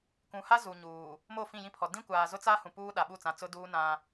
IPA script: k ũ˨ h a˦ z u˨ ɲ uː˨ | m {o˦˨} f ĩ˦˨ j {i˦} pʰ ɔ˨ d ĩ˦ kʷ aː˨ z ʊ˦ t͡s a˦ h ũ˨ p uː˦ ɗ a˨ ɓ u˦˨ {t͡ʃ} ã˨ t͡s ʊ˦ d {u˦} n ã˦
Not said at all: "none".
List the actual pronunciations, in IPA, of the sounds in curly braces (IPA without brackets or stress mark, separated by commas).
o˦˨, ĩ˦, t͡s, uː˦